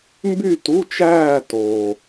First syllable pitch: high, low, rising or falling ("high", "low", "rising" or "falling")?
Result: falling